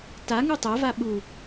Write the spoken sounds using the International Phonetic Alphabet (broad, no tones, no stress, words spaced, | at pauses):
taŋu tˤeva ɓu